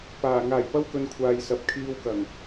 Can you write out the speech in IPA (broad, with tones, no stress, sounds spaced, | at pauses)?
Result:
p aː˨˩ ŋ aː˨˩ j p ɐ˥ w k ɵ˨ n kʷʰ aː˨ j s ɐ˨ p̚ kʰ iː˧ w k ɐ˨˩ ŋ